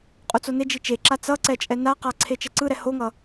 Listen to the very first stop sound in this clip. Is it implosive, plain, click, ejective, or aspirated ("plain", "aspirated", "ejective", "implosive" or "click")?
ejective